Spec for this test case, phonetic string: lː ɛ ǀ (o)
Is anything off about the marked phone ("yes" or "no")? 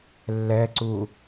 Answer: yes